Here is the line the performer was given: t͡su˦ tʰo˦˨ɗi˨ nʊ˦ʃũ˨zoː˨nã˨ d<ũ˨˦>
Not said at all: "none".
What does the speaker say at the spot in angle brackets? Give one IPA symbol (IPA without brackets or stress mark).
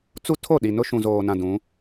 ũ˨˦